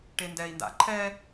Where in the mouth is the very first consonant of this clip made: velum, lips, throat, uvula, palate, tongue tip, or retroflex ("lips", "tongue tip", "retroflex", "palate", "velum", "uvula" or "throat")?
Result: retroflex